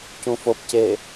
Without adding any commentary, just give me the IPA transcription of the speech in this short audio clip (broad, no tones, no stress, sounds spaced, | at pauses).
c ũ f o p c e